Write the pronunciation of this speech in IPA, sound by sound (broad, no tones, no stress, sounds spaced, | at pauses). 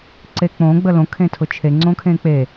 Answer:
ǀ e k͡p õ ɡ͡b ə l õ kʰ ẽ tʰ ʊ t͡ʃʰ e ŋ͡ǀ õ kʰ ẽ k͡p e